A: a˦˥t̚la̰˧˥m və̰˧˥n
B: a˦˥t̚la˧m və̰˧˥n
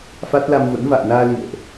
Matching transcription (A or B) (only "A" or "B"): B